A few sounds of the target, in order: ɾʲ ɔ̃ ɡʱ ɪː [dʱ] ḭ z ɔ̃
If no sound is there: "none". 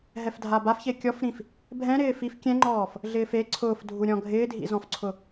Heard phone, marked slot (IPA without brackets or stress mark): dʱ